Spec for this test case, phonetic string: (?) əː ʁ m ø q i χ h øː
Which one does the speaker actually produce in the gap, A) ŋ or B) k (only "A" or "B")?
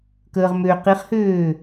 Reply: B